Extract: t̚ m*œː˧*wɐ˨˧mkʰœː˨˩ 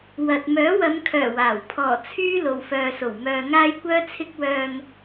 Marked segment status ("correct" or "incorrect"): incorrect